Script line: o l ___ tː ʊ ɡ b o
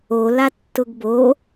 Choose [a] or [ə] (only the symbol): a